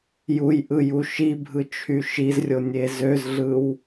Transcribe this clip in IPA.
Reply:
jujʔɯ juʃibʱɯ t͡ʃʰyʃizrʲo nʲezøzɮɯw

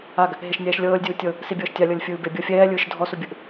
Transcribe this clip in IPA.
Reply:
aɡ | ɦeʃnʲɛːʃlʲɤːlʲdʲuː tʲɤ | sibʲɤːʃtʲa lʲɤlʲfʲɯːbe bʲɤfʲɛːlʲɯːʃ dʱɔsubʲɯʔ

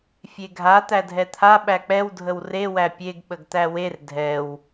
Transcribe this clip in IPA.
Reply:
fʲeɡʱa t̪ædʱɛt̪ʰa ɓæk͡pɛw dʱəwre wæpʲeɡ ɓəɡt̪æwer dʱɛw

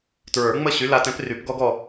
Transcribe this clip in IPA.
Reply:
tɹə˞˨˩˦ŋ͡mə˦˨ ɕy˨˥la˨˥tɛ̃˨˥p ry˨˩˦pɡɔ˦ɡɔ˦˨

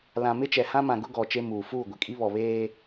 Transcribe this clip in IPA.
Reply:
lã˨mɪ˦t͡ʃɛ˨ hã˦mã˨ɡʊ˦ ɡɔ˨t͡ʃe˦muː˨ fuː˦˨ɡʷɪ˨kʼi˦ βɔ˨βeː˦

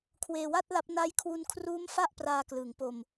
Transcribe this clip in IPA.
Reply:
kʰweː˧wa˥˩t̚la˦˥p̚ na˦˥jkʰwu˧nkʰruː˦˥m fa˥˩ʔpraː˧klɯː˩˦ŋ po˧m

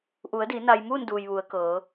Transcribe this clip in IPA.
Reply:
ʔu˩˧ə̯di˩˧ na˧j muː˥˨nduː˩j ʋu˩˧ə̯ kɤː˩˧

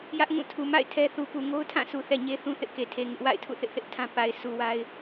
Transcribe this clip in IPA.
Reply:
jä˦ʔŋũ˦˨tʰu˨ ma̰˦˨ɪ̯ tʰɛ˦ θu˨pu˨ŋo˦ʊ̯tʰã˦˨ su˨θɛ˨ɲe˦ θũ˦θɪ˦ʔke˨tʰe˨ ŋɪ˦ʔ wa̰˦˨ɪ̯ tʰṵ˦˨θɪ˦ʔθɪ˦ʔ tʰã˦pa˨ɪ̯ sʰu˨wa˦ɪ̯

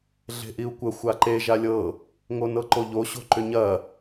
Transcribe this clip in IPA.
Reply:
ɮe̤ʔiu̯kʷə xʷaǃe ʒalʲɤ | ŋonɤǃoʎo ɕo̤ǃʏɲɐ

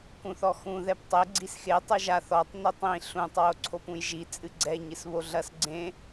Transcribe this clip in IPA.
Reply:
kũθɔxũ ðɛptˤɘ ɡ͡ǀisxe tˤuʒaθ ɔtˤ nitˤĩ ɬũtˤ woǀʰopũjʒi t͡sʼɨɡ͡ǀɛ ɲɨsβoɮɐs ɡ͡ǀẽ

